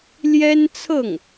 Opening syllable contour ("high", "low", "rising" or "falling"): high